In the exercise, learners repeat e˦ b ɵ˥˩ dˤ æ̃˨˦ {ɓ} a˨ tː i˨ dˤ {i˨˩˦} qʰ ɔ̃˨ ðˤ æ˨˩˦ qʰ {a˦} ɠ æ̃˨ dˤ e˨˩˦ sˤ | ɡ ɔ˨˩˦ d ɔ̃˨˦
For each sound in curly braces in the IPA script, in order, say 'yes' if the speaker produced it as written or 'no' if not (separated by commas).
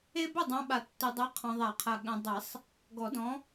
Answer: yes, no, no